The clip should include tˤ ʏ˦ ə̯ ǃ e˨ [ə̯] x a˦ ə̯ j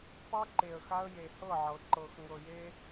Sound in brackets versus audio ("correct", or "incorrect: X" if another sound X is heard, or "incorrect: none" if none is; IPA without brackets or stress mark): correct